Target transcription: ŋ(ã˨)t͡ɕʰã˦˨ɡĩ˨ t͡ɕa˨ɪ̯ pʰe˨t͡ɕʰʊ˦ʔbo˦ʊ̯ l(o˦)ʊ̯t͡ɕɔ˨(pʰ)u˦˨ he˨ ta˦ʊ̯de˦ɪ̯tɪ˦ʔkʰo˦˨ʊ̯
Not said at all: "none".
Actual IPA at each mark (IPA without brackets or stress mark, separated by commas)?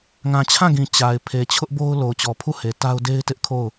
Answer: ã˨, o˨, pʰ